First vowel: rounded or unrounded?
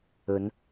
rounded